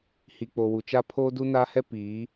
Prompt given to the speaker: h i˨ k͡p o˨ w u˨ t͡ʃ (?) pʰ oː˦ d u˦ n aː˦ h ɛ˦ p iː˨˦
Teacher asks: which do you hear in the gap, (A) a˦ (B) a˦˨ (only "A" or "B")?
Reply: A